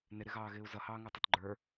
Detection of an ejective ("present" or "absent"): absent